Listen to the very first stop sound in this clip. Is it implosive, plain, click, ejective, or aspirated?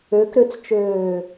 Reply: plain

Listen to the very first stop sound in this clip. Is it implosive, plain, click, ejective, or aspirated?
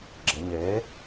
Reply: click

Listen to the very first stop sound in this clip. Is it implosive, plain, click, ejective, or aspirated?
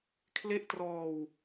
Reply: aspirated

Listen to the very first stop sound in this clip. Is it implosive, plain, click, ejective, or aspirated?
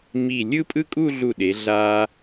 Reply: ejective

